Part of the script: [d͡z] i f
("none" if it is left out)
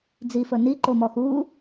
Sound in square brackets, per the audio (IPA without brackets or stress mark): d͡z